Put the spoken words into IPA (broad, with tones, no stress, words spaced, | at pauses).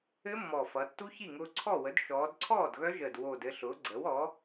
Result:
ɘ˦˥mːɔ˨˩fʌ˩˧tːu˦˥ çi˥˩ŋʊː˧ǀʰɔ˥˩wə˩˥d ʃɔː˩˧dǀʰɔː˥˩d ɣœ˦˥ʒəː˨˩d wo˨˩d ɘ˧ɬʊː˩˥ ɡ͡ǀəː˩˥wɔ˩˥